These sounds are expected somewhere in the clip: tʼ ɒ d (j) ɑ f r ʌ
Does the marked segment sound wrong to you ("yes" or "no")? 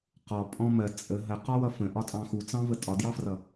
no